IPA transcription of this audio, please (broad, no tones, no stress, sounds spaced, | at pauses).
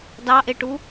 d ɑ ʔ e ʈ u